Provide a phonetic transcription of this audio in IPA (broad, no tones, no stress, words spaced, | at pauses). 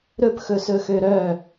ɾɵp xɵsɵxøɾœ